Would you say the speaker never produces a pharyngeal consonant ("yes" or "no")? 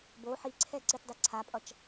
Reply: no